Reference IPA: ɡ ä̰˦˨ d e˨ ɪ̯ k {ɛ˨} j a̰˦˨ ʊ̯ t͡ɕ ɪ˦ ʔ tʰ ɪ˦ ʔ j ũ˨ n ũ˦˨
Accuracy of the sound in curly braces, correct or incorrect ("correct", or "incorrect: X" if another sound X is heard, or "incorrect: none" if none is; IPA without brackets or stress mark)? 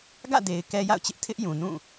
incorrect: ɛ˦